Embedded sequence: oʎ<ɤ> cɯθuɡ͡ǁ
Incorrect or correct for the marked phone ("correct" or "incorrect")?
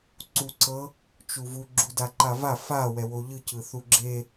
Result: incorrect